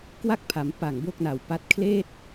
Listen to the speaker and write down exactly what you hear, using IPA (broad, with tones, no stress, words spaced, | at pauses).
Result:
kwa˥˩k̚pʰa˩˦m pa˨˩ŋbo˥˩k̚na˨˩wpa˦˥t̚ kʰleː˥˩t̚